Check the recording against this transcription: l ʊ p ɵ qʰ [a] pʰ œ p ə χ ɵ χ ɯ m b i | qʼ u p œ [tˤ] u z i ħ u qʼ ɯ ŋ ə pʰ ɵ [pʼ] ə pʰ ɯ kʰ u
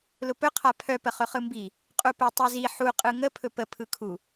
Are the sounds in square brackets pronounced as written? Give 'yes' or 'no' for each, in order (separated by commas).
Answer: yes, yes, no